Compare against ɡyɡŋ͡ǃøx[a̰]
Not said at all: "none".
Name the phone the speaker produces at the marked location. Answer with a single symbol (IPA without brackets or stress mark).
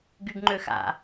a̰